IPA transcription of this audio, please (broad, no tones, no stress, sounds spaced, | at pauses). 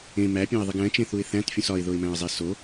ẽ m æ pʲ õ ɪ̯ ðˤ i ɡ æ̃ t͡ʃ ẽ θ u ɪ̯ θ æ̃ t fʲ ũ s ɒ ɪ̯ ð o ɪ̯ m æ̃ ə̯ zˤ i s o